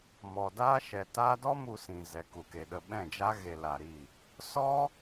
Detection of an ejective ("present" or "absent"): absent